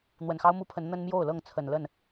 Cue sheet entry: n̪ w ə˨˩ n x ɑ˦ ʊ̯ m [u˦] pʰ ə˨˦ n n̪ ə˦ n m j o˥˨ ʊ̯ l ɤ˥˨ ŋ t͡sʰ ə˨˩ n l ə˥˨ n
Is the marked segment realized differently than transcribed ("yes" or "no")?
no